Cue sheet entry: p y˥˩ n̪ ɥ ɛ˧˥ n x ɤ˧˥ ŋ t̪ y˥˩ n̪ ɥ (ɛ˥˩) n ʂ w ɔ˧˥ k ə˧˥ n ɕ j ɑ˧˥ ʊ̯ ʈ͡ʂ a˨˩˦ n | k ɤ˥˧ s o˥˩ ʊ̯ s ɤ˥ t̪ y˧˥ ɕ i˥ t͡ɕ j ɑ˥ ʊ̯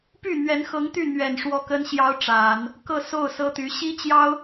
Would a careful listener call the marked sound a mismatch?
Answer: yes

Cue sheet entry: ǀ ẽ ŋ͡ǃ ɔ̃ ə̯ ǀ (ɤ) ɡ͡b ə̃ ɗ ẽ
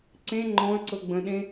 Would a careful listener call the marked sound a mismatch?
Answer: no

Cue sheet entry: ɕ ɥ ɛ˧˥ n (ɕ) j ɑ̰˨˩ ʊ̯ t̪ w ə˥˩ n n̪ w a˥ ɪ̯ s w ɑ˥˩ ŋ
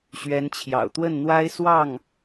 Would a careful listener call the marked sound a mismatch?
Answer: yes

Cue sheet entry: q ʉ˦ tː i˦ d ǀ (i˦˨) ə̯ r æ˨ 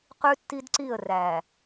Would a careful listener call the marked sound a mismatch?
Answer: no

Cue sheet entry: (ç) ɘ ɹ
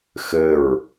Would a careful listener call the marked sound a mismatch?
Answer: yes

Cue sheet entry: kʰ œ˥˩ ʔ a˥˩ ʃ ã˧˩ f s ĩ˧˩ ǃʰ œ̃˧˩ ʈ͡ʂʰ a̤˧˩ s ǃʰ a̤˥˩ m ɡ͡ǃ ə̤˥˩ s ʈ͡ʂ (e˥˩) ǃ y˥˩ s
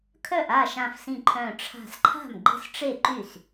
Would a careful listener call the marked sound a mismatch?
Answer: no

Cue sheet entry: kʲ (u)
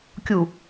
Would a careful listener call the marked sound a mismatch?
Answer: no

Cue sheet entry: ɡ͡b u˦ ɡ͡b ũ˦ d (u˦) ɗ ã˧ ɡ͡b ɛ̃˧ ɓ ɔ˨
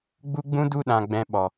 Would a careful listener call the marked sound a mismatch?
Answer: no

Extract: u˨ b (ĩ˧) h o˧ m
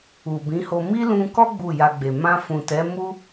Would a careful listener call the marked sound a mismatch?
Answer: yes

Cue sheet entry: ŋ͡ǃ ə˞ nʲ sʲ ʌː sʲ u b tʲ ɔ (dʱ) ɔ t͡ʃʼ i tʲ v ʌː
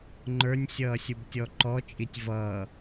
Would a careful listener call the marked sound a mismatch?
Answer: yes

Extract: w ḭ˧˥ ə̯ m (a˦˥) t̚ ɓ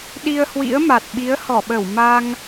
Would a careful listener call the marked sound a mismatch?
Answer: yes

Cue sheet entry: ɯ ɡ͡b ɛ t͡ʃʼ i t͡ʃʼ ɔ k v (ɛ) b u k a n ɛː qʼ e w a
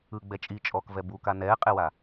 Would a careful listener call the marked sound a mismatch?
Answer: no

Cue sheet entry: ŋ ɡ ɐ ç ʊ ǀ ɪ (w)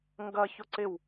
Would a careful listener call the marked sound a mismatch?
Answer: no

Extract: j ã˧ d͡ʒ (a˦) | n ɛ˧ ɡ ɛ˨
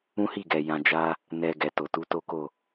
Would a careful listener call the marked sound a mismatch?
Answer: no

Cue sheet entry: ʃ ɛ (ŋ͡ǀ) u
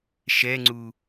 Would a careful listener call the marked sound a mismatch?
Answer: no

